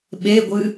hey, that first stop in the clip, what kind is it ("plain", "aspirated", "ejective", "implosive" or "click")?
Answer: implosive